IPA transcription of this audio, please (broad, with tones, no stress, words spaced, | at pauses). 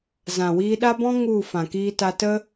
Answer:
zã˨wiː˧ɗa˦bɔ̃˦ ŋu˦˨ fã˨kiː˧ta˧tə˦